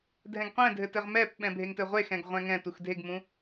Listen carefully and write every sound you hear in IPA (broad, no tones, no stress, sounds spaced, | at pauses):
dʱ ɛ̃ ɡ qʷ ɛ̃ dʱ ɘ t ɘ ʁ m ɛ p ɓ ɛ̃ bʱ e ŋ t ɘ ʁʷ e x ɛ̃ ɡ ʁʷ ɛ̃ ŋ ɛ̃ t u x dʱ e ɡ m ũ